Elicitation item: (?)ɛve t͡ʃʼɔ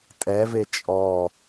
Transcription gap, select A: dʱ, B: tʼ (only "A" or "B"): B